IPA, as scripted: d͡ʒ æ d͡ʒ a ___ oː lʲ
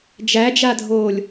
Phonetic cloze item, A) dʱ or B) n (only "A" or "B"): A